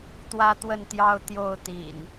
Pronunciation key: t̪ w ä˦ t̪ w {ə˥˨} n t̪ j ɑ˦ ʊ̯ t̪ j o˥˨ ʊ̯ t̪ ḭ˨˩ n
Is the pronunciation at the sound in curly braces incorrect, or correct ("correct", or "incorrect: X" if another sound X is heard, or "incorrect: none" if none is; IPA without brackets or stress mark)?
correct